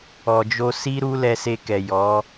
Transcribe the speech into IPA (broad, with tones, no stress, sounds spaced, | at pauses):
ɔ˨ d͡ʒ o˧ s i˦ ɾ u˦ l ɛ˧ s e˧ k ɛ˨ j ɔ˨˦